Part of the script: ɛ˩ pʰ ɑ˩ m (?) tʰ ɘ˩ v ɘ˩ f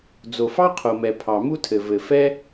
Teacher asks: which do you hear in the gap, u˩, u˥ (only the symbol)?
u˥